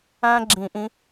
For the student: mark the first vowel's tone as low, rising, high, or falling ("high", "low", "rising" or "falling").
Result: high